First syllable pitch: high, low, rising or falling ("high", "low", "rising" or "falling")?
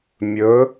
rising